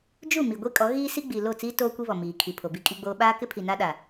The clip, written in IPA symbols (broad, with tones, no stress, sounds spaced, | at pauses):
d͡ʒ u˦˨ m i˨ ɡʷ i˦ kʼ ɔ˨˦ ɣ iː˦ s i˦ ɡ͡b i˨ l o˦˨ t͡s iː˦ t oː˦ kʷ i˦ β ɔ˨ m iː˨ kʰ i˨ pʰ o˨ b i˦ kʼ i˦ ɡ͡b oː˦ ɓ aː˦ k ɪ˦ pʰ i˨ n a˦ ɗ a˨